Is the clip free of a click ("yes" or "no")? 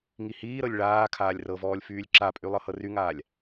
no